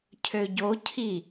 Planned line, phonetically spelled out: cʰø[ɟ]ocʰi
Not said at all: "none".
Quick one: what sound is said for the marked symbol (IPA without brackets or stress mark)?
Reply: ɟ